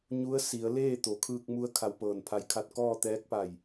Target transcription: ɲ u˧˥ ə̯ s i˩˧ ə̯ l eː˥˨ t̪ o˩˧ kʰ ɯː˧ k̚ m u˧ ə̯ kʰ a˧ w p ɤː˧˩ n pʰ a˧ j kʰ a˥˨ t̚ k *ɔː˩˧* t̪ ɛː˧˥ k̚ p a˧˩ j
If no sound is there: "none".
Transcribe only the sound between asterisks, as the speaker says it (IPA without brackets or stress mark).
ɔː˥˨